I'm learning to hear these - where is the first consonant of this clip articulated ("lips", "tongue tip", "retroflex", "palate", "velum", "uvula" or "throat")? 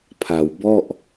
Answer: lips